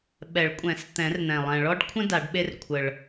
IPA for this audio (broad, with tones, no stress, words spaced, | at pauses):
ɓɛ˨˩˦ɭkʷʼɛ̃˨˩˦s t̪ɛ̃˨˩˦rn̪ɛ̃˨˩ lˠɛ̃˨˩ɭɔ˦ɖkʷʰə̃˦ da˨˩˦ɖɓe˦r kʷʰə˨˩ɭ